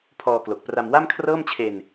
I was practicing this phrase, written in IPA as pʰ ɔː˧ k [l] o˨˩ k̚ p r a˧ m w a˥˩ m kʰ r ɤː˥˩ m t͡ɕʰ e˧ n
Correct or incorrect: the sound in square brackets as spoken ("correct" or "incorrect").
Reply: correct